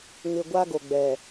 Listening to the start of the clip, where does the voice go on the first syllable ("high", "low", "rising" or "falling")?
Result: low